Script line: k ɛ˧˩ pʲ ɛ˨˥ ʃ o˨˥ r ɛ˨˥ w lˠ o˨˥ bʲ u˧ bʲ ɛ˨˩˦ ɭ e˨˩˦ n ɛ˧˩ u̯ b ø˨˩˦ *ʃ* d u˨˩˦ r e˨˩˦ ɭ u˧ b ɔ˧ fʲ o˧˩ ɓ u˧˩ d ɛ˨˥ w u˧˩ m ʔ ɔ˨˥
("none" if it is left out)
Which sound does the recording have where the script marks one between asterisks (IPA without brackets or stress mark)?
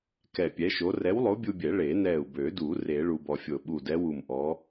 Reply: none